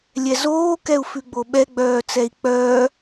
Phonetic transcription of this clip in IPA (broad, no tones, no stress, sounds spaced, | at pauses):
lʲ ɛ z oː k ɛ u̯ f ʉ ɡ͡b o ɓ ɛ ɡ͡b œː t͡s ɛ i̯ k͡p œː